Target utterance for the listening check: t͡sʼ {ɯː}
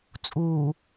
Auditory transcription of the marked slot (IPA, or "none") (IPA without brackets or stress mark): uː